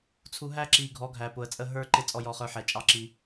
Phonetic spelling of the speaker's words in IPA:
t͡sʰ u˨ ɦ æ˦ ǁ i˨ ɡʱ ɔ˨˦ ɡʱ æ˨ p ʊ˨ ə̯ t͡sʼ ə˦ ɦ ə˞˦ ǃ ɪ˦ t͡sʼ ɔ˦ j ɔ˦ χ ə˞˦ ħ ɛ˨ t͡ʃʼ ɑ˦ ǁ i˦

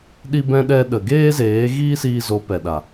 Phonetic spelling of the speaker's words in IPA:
ɗ i˧ b ɛ̃˧ ɗ ɛ˧ ɗ ə˨ ɡ eː˦ z eː˨˦ ɣ iː˦ s iː˧ z o˨˦ p ɛ˨ ɗ a˨

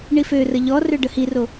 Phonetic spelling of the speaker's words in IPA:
ɳ i f ø r ə ʎ ɔ r ø ɖ ə h i r o

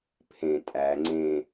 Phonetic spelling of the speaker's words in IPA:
pʰ ẽ tʼ æ ŋ͡ǀ ẽ

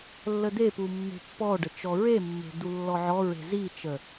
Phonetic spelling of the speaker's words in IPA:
lː ə d̪ e p u mː e̤ pː ɔ ɖ ə t͡ʃ ɔ ɹ e mː e̤ d̪ u lː ɔ ʕ ɔ ɹ e̤ z i t͡ʃ ə

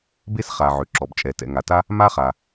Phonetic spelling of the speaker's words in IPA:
b e˥ s χ a˩ ʕ ø˩ ǁ ɔ˩ b t͡ʃʼ ɛ˩ t ɛ̰˩ ŋ a˩ t a˦ | m a˦ χ a˩

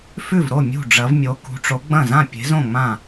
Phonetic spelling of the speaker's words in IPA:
f ʉ˥˩ v ɾ o˥˩ mʲ ṳ˥˩ ɖ͡ʐ ɐ˨˥ v mʲ o˨˥ k ṳ˨˥ ʈ͡ʂ o˨˥ ɡ͡b ɐ̃˥˩ z ã˥˩ pʲ e̤˨˥ z õ˥˩ ŋ͡m ã˥˩

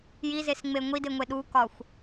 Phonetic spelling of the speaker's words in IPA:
j i z e s ŋ͡m e ŋʷ i d e ŋʷ e ɗ u k ɒ xʷ

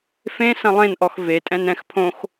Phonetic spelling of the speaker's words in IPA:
f ẽ s ɐ̃ lˠ ẽ n ʔ ɔ x v e tʼ ɛ̃ n ɛ̃ x pʰ õ x

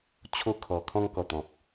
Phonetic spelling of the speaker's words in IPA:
t͡ɕʰ o˧ kʰ ɔ˨˩ kʰ ɔ̃˧ ŋ k ɔ˨˩ t̪ ɔ̃˨ p̚

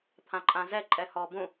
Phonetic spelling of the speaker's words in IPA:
t̪ʰ ã ǃʼ ã z ɛ ǃʼ ɛ h ɔ b ũ

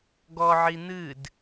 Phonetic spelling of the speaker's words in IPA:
ɡ ɔ ʕ i n̪ ɨ d

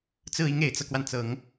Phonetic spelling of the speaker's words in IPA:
t͡s ɹ̩˥˩ i˧˥ ŋ e˨˩ ɪ̯ t͡s ɤ˦ k w a˩ n t͡s ɤ˨˩˦ ŋ

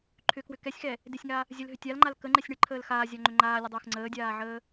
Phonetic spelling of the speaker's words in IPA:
ǃʰ ʏ k w ʏ k ɛ sʲ x ɛ | d ɪ sʲ ŋ a | zʲ ə l ɦ ʏ tʲ a l ŋ͡ǃ a l k ə ŋ͡ǃ ɛ sʲ ɳ ɪ ǃʰ əː l x aː zʲ a ŋ͡ǃ ʏ ŋ͡ǃ aː lʲ ə dˤ ɪː x ŋ͡ǀ əː dʲ aː ʕ əː

